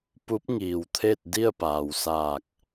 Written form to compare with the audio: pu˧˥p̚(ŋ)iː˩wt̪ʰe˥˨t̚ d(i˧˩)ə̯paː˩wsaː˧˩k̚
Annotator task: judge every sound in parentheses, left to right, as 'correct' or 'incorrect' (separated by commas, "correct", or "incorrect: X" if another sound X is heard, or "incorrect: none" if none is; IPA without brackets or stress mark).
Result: correct, incorrect: i˥˨